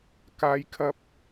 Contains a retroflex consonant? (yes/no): no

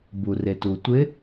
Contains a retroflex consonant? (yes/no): no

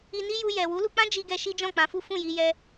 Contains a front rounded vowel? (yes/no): no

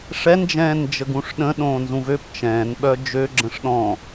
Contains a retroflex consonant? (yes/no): yes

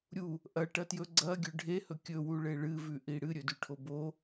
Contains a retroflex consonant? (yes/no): yes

